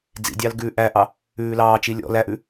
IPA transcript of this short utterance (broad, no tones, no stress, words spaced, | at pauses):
d͡zḭdʲɑl ɡʉːʔæʔɑ | ʉːlɑːt͡ʃi lʲɔ̰ læʔʉ